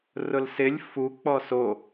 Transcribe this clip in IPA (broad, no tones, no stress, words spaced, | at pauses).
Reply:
rʊlsɪlʲ fu k͡pɔso